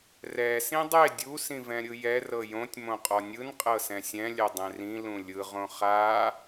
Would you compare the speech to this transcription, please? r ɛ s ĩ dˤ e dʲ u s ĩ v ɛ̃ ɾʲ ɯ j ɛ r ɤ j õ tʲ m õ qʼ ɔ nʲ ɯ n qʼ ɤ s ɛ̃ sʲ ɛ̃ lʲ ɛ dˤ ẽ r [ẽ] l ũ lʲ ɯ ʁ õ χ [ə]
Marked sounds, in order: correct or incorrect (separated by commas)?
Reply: incorrect, incorrect